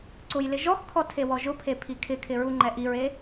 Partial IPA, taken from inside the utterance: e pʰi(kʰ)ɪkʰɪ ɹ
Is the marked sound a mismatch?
no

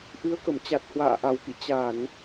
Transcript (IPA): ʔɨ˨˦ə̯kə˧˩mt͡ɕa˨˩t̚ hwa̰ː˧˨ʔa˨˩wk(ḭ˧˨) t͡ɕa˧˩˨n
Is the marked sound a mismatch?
no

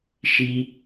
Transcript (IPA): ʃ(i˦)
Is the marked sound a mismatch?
no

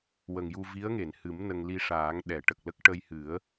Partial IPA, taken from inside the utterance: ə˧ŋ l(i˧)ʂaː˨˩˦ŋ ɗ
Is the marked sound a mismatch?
no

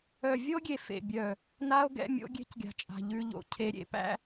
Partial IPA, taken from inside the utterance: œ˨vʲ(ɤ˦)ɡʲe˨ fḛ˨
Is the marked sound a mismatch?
yes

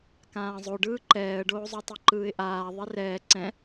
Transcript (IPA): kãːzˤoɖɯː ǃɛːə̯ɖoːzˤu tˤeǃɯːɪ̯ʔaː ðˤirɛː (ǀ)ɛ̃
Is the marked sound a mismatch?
no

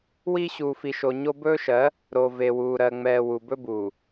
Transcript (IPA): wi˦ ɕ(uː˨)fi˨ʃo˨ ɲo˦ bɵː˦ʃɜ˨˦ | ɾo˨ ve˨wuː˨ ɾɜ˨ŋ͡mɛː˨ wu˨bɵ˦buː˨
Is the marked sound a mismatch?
no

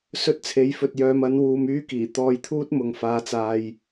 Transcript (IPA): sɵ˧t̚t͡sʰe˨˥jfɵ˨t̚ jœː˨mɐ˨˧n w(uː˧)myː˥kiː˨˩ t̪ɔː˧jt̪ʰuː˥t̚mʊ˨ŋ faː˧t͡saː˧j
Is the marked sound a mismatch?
no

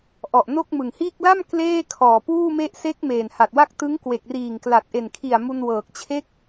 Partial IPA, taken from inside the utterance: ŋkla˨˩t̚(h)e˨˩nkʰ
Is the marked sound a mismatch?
yes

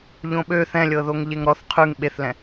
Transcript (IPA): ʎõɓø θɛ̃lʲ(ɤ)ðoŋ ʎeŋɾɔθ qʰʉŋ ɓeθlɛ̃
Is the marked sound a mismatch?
no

